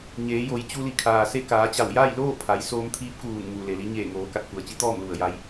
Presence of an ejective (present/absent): absent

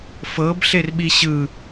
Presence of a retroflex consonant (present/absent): absent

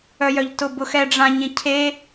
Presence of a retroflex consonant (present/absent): present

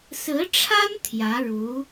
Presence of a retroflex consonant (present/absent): present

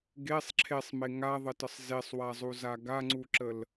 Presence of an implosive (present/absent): absent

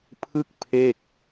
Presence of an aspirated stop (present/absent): present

